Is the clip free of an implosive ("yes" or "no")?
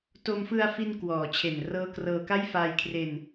yes